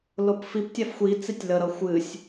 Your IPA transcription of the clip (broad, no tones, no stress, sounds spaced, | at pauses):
l o p f i p tʲ a f xʷ i t͡s i tʲ l ə ɾ ʌ xʷ ɨ sʲ